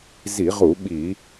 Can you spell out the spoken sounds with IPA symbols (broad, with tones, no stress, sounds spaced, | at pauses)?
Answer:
z i˧˩˧ ʁ u˧˩˧ ɓ i˧˩˧